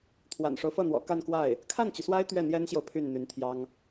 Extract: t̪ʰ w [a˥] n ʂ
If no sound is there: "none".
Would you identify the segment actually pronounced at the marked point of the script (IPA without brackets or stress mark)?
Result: a̰˨˩